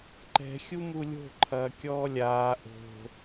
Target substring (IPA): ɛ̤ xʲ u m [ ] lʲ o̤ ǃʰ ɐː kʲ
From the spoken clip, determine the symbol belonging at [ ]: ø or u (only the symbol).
u